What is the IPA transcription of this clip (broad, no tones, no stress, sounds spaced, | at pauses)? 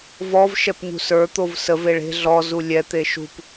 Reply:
v ɔ v ʃ ɛ p ɲ ṳ s ə˞ t̪ o v s ə v e ɭ e̤ ɮ ɔ z u lʲ ɛ t̪ e ʃ ṳ p